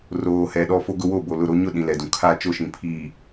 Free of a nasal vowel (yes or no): no